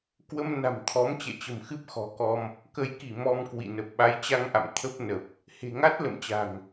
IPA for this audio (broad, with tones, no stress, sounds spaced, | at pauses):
k w ə˧ m n a̤˨˩ m t̪ʰ ɔ˨˦ m t͡ɕ ɛ̰˧˨ t͡ɕ ə̤˨˩ m x ɨ˦˥ p̚ x ɔ̤˨˩ k ɔ˧ m | k ə˨˦ j k i˧˩ m ɔ˧ m k w ḭ˧˨ n ə˨˩ p̚ ɓ a˨˦ j t͡ɕ a˧ ŋ ʔ a̰˧˨ m t̪ʰ ə˦˥ p̚ n ə˨˩ p̚ | h e̤˨˩ ŋ a˦˥ t̚ l ə̰˧˨ m t͡ɕ a̤˨˩ ŋ